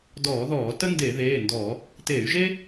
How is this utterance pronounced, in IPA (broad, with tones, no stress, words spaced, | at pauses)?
dɔː˧˩˧ðɔː˧˩˧tə˥ nde˧˩˧ðeː˩˧˩ndɔ˧˩˧ | teː˧˩˧y̯ʒe˥